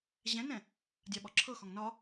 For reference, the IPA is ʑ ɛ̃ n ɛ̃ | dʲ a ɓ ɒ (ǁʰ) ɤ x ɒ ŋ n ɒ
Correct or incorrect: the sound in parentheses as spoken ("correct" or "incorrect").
correct